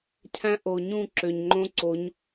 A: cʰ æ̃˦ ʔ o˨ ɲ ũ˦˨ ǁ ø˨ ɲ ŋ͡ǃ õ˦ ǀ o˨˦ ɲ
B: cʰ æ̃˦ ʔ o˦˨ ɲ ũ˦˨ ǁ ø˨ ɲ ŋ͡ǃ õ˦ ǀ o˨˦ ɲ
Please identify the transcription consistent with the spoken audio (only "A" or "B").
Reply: A